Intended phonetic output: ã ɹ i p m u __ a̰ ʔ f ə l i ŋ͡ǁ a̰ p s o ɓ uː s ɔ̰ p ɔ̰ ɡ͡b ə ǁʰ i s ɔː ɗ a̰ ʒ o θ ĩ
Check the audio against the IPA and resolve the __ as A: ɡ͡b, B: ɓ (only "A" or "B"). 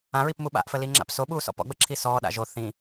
B